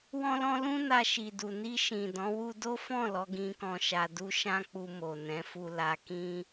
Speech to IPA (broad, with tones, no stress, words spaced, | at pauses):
wɔ̃˦lɔ̃˦ lũ˦na˧ʃi˨du˨ ni˧ʃĩ˨ dɔ̃˨˦ wu˧do˦fɔ̃˦˨ lɔ˨˦ɡĩ˧kɔ̃˧ ʃa˧du˦ ʃã˦k͡pu˧ mo˨nɛ̃˨˦fu˧ la˧kĩ˦